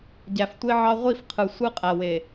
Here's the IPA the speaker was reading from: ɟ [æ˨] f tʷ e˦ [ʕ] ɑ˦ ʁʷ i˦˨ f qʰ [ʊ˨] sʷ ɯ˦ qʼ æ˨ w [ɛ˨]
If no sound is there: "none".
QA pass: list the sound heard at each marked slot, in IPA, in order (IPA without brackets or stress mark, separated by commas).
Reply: æ˨, ʕ, ɯ˨, e˨